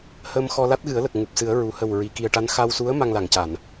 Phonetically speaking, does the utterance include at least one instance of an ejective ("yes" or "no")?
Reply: no